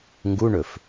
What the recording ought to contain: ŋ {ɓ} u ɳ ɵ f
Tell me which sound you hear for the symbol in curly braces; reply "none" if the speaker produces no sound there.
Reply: ɡ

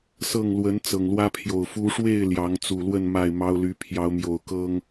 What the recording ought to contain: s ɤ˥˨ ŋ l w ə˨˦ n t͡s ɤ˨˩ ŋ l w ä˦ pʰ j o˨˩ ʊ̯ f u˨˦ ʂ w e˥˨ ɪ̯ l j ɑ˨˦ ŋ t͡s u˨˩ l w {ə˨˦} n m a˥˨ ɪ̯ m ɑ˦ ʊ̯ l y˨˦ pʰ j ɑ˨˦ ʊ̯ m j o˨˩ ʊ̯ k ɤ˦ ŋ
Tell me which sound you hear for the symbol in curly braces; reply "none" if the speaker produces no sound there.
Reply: ə˥˨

